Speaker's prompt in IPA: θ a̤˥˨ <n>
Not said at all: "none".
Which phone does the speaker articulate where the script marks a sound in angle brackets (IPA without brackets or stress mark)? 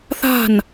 n